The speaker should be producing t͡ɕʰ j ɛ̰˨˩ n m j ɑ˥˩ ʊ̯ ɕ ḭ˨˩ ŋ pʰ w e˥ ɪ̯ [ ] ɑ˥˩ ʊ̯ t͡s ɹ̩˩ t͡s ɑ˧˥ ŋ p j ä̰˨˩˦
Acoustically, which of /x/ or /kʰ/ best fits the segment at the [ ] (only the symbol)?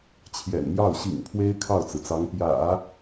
kʰ